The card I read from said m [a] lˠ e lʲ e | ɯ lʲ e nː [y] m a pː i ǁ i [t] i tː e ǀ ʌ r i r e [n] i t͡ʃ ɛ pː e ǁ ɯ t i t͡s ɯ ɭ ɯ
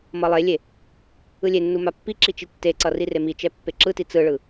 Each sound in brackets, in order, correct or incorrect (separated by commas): incorrect, incorrect, incorrect, incorrect